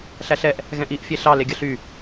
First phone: ɬ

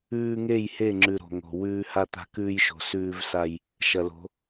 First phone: ʉː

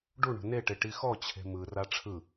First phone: ɖ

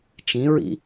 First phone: t͡ʃ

